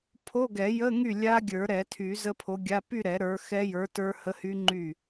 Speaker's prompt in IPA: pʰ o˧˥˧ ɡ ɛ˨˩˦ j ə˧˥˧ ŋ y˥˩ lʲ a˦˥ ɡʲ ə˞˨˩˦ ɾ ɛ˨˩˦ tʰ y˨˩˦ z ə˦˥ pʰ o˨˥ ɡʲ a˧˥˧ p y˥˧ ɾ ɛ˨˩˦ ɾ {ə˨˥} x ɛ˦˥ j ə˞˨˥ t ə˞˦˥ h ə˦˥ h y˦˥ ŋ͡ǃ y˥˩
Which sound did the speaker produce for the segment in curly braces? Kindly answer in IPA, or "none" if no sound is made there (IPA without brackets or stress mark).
ə˞˨˥